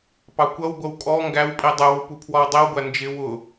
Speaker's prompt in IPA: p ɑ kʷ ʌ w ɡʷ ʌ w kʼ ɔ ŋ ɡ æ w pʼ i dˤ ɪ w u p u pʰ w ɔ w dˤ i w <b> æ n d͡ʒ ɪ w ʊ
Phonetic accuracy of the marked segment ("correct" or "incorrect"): incorrect